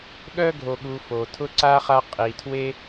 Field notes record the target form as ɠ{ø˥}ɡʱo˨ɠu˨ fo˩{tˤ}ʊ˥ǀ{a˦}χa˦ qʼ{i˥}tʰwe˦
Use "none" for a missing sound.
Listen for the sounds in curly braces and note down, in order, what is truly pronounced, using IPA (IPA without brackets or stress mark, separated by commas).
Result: œ˥, tʰ, a˥, i˩